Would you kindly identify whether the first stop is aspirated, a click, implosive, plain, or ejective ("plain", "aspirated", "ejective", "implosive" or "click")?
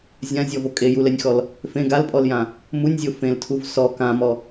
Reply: ejective